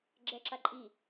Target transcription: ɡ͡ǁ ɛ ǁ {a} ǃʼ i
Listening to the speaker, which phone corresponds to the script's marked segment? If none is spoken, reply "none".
a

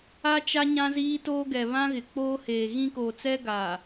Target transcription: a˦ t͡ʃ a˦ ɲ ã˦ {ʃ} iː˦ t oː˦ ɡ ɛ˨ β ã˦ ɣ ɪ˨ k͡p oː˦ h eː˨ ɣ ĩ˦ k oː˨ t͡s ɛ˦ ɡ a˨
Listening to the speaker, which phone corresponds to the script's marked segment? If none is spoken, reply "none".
z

